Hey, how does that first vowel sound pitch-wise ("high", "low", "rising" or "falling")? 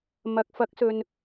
low